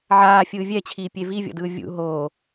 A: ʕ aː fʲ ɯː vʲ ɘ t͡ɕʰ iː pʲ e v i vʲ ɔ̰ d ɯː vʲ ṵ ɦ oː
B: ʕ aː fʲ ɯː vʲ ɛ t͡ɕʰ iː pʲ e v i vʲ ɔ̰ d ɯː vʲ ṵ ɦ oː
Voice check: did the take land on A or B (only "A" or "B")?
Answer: B